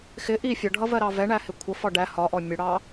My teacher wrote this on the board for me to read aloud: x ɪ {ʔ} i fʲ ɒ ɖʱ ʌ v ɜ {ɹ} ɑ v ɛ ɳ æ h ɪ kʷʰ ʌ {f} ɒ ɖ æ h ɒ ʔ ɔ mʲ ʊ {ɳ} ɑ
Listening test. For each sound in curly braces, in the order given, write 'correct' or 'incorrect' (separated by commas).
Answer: correct, incorrect, correct, incorrect